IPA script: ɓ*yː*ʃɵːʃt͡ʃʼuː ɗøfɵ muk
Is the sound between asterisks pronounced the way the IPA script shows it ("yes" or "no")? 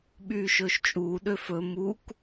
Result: yes